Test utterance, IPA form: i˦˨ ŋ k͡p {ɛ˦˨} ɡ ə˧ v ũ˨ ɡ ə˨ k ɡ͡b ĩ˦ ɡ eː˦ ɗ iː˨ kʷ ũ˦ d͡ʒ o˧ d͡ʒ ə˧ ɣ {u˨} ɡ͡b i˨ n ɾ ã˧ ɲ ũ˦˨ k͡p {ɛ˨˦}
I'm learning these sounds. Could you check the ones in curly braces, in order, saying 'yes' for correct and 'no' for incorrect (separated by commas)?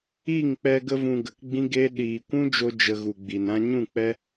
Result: no, yes, no